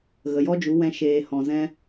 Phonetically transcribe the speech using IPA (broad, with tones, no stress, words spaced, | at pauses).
ɣə˨jɔ˦d͡ʒu˨˦ wɛ̃˧ ʃeː˨ hɔ̃˨ zɛ̃˧